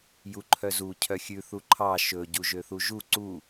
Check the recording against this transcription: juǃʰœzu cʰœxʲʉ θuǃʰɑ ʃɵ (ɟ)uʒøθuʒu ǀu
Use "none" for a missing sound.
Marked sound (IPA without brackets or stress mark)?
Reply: ɟ